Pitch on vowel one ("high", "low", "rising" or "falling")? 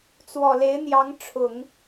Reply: low